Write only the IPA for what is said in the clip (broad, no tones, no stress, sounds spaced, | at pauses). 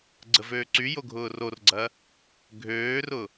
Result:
ɡ͡ǀ ə v øː ǀ y j o ɡʱ ʊː r o r ɡ͡ǀ ɐ | ɡʱ øː r ʊ